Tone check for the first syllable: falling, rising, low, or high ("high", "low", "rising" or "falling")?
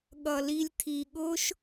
low